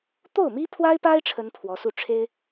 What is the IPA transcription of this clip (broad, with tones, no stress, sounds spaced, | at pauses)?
t̪ o˥˩ ʊ̯ m i˥ pʰ w a˥ ɪ̯ p a˥ ɪ̯ ʈ͡ʂʰ ə˥ n pʰ w ɔ˧˥ s u˥˩ ʈ͡ʂʰ e˥ ɪ̯